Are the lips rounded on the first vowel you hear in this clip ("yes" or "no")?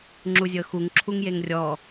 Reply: yes